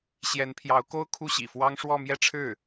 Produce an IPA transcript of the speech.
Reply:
ɕ j ɛ˧˥ n pʰ j ɑ˧˥ ʊ̯ k o˥ ʊ̯ kʰ u˥˩ ɕ ḭ˨˩ f w ɑ˥ ŋ ʂ w ɔ˥˧ m j ɛ˥˧ ʈ͡ʂʰ ɻ̩˥˩

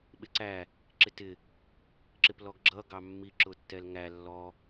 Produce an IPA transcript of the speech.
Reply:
ɓ ɪ ǀ æ | ǁ ɪ t ɪ | ǁ ɪ p l ɔ ɡ ɡ͡ǁ ʌ ɡ ɑ mː i ǁ ʊ tː ɛ l ŋ æ lː ɔ

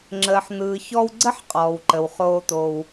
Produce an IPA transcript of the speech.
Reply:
ŋ͡ǁ əː˨ ħ n̪ ɯː˨ ç ɔ˦ w ɡ͡ǀ ə˥ ħ qʼ ɔː˩ w ǃ ə˩ w χ oː˨ t̪ o˩ w

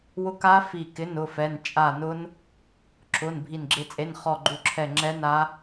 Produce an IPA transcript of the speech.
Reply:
w ʊ˦˥ k a˦˥ f i˦˨ k ɪ˧˥˧ n ʊ˧˥˧ f ɛ˧˥˧ n t͡ʃʼ a˦˨ n ʊ˦˥ n | ǁ ʊ˧˥˧ n bʱ i˦˨ n ɡ͡ǁ ɪ˦˥ t͡sʼ e˧˥˧ n χ ɔ˦˨ ɡ͡ǃ u˦˨ ǁʰ ɛ˦˨ ŋ͡ǁ ɛ˦˥ n a˦˥

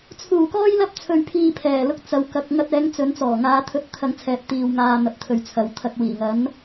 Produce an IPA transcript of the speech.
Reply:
t͡sʰ uː˨˩ k ɔː˥ j l ɐ˥ p̚ t͡sʰ ɵ˧ ɥ pʰ iː˧ pʰ ɛː˨˩ l ʊ˧ k̚ t͡s ɐ˨˧ w k ɐ˨ k̚ ŋ ɐ˧ t̚ ɛː˨˧ ŋ t͡s ɵ˨˧ n t͡s ɔː˨˩ ŋ aː˨˧ t̪ʰ ɵ˧ t̚ t̪ʰ ɐ˧ ŋ t͡sʰ ɛː˨ p̚ t̪ iː˨ w ŋ aː˧ n̪ ɐ˨ p̚ t̪ʰ ɵ˨ ɥ t͡sʰ ɐ˨˧ w t̪ʰ ɐ˧ k̚ w iː˨˩ ŋ ɐ˨˥ n

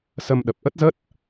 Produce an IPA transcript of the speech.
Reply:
s ə˧ m ɗ ə˨˩ p̚ ʔ ə˦˥ t̚ z ə˦˥ t̚

